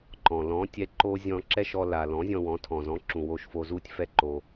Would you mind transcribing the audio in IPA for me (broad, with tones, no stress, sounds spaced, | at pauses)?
ǃ ɔ̃˨ l ɔ̃˨˦ tʲ ɛ˧ ǃ o˦ zʲ ɔ̃˧ ǁ ɛ˦ ʃ ɔ˧ l a˨ l ɔ̃˨˦ zʲ ɔ̃˧ w ɔ̃˨˦ tʰ ɔ̃˨ z ɔ̃˨˦ ǁ ũ˨ w o˧ ʃ f o˧ z u˦ tʲ f ɛ˦ ǃ o˧